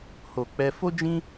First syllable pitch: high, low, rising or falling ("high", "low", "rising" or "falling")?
low